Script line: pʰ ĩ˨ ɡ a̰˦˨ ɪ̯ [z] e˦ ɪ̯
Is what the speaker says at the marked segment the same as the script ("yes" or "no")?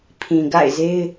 yes